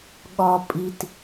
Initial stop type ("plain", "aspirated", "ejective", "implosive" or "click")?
implosive